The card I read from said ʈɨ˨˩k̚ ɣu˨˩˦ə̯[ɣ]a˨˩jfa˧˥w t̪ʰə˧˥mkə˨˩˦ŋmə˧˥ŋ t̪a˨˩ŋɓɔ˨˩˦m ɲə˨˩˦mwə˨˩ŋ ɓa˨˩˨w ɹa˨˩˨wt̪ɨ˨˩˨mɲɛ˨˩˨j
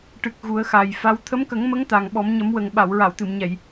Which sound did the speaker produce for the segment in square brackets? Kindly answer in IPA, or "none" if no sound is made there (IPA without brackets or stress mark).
x